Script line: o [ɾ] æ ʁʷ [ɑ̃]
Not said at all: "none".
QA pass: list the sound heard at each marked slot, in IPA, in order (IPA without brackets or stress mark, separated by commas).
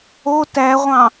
t, ɑ̃